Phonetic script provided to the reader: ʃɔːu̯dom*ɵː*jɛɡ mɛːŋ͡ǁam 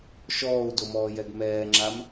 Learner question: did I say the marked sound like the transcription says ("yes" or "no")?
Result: no